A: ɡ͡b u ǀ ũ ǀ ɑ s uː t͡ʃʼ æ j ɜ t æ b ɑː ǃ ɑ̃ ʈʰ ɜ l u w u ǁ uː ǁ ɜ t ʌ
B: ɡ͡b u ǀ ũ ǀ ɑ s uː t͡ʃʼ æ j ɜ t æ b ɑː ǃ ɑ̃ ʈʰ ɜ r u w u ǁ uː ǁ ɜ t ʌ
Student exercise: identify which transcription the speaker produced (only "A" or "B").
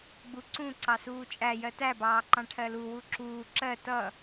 A